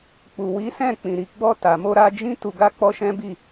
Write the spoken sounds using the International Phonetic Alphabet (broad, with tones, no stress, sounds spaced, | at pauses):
k͡p u˨ w i˨˦ s ɛ̃˦˨ k͡p ĩ˨ ɾ i˨ ɡ͡b ɔ˧ t a˨ m o˧ ɾ a˧ d͡ʒ ĩ˦ t u˧ ɡ a˦ k͡p ɔ˦ ʃ ɛ̃˦ b i˦˨